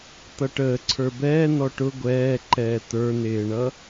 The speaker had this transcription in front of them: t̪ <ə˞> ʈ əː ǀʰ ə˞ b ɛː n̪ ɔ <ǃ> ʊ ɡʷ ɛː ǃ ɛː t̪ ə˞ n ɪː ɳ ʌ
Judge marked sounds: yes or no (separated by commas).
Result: no, no